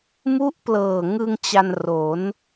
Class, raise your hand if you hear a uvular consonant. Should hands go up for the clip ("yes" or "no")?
no